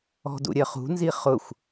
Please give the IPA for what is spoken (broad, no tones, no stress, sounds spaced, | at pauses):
ɔ̤ d ṵ ɾʲ ɜ χ ṳ n z i χ ʊ xʷ